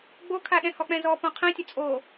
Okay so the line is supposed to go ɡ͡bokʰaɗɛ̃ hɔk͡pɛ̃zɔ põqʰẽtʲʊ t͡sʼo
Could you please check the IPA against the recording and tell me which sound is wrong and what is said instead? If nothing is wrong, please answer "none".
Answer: none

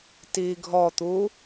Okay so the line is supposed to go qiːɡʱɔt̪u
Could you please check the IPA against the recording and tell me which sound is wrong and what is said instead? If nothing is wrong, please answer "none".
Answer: q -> t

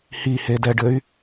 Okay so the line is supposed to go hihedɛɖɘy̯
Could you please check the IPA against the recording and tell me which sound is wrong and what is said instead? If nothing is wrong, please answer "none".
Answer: none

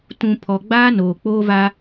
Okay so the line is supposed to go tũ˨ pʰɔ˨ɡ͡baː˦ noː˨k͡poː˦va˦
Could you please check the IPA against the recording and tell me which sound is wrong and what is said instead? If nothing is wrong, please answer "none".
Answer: none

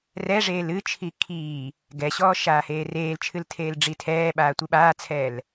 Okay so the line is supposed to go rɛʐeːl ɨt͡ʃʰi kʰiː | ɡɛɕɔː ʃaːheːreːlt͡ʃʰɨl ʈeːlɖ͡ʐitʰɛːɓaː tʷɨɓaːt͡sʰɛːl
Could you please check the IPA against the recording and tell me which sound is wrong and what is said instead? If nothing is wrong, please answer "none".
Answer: ʈ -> tʰ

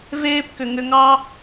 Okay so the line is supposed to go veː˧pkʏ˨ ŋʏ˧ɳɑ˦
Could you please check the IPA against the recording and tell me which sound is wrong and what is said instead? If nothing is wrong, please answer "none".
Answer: ɳ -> ŋ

